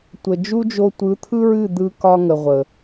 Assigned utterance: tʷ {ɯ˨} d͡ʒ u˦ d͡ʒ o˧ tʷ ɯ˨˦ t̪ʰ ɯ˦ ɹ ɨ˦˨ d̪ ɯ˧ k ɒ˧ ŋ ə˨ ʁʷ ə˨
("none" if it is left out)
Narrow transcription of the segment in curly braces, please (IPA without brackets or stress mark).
ə˨